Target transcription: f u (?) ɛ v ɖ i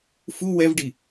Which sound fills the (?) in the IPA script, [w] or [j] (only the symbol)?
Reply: w